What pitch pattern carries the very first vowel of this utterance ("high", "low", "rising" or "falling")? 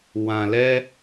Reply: low